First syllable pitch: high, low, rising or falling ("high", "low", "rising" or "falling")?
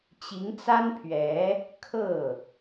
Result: rising